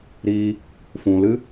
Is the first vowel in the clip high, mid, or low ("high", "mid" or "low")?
high